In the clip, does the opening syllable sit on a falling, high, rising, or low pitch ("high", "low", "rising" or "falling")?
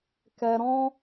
high